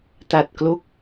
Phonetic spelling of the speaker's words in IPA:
t a˨˩ t̚ k l o˥˩ k̚

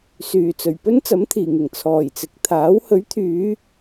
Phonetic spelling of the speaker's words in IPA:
s yː˨˩ t͡s ɵ˨˩ ɥ p ɵ˥ n t͡s ɐ˨˥ m t̪ʰ iː˨˩ ŋ ɪ˨˩ ŋ t͡sʰ ɔː˨˩ j t͡s ɪ˨ k̚ t̪ʰ aː˨˥ w h ɵ˨˥ ɥ t̪ʰ yː˨˧

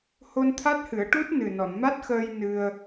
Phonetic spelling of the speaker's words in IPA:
h o˧ n t̪ʰ a˦˥ t̚ h ɨ˨˩˦ ə̯ ʈ u˦˥ t̚ n ɨ˨˩ n ɔ˨˩˨ n m a˦˥ t̚ x əː˧ j n ɨ˧ ə̯

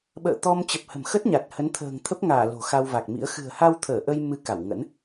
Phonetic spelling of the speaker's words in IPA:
ɓ ə̰ː˧˨ t̪ ɔ˧ m t͡ɕ ə˨˩ p̚ h ə̤˨˩ m x ə˦˥ t̚ ɲ a˨˩ t̚ h ə˨˦ n t̪ʰ ə̤ː˨˩ ŋ t̪ʰ ə˦˥ p̚ ŋ aː˧˩ l o̤˨˩ x a˧ w v a˨˩ k̚ m ḭ˧˥ ə̯ x ɨ̤˨˩ ə̯ h a˧ w t̪ʰ əː˧˩ ʔ ə˧ j m ɨ˧ k a˧˩ w ŋ ə̰˧˥ n

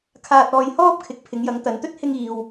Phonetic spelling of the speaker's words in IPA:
kʰ aː˧ t̚ ɔː˧ j h ɔː˥ p̚ kʰ ɪ˨˥ k̚ pʰ ɪ˨˧ ŋ j ɐ˨˧ ŋ t̪ ɐ˨ n t̪ ɵ˥ t̚ h ɪ˧ ŋ iː˨ w

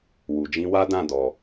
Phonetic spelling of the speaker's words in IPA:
w u˨ d͡ʒ ĩ˧ w a˦ d ã˦˨ d ɔ˨

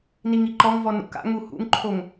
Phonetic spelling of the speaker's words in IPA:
n i ŋ i ǃ ɔ ŋ v ɔ n ṵ k a̰ ŋ u h ṵ ŋ ǃʰ o ŋ

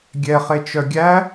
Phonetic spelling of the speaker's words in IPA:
ɡʲ ɛ χ e t͡ʃ œ ɡʲ æ

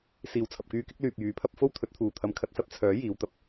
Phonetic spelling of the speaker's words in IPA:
s iː˨˩ w t͡sʰ ɐ˨ p̚ k yː˧ k ɪ˥ k̚ l yː˨ p̚ j yː˨˥ pʰ ɐ˥ p̚ f o˥ w t̪ʰ ɵ˨˥ t̚ t̪ʰ uː˨ t̪ʰ ɐ˧ m kʰ ɐ˧ t̚ s ɐ˥ p̚ t͡sʰ œː˨˥ j iː˨˧ w t̪ ɐ˥ p̚

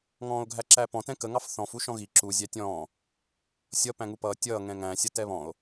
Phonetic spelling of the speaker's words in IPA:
ŋ ɔ̃ː o̯ ɡʱ æ ǁ æ p ɔ̃ t ɛ̃ k ə ŋ ɑ f θ ɔ̃ f u ʃ ɔ̃ ɣ i ǁ u zʲ æ tʲ ɔ̃ː | sʲ ʌ p æ̃ ŋ u p ʌː tʲ ʌː ŋ ɛ̃ ŋ æ̃ sʲ ʌ t ɛ β ɔ̃ o̯

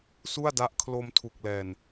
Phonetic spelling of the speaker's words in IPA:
s u˥˩ a̯ d a˦˥ ʔ kʰ l o˧ m tʰ u˨˩ k̚ l ɛː˨˩ n

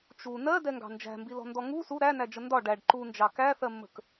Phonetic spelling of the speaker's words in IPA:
t͡ʃ u n ɜ d ɛ ŋ ɡ ɑ̤ n d͡ʒ æ̤ m b i l ɔ̤ n d ɔ ŋ u s u ɾ æ n æ d͡ʒ ə n d ɒ ɖ æ ɖ ǃ u n d͡ʒ ɑ k æ θ ɜ mː ə̤ k

